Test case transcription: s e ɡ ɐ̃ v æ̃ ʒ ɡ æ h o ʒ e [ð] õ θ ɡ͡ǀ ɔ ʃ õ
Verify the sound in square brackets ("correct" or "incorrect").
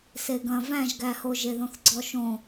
correct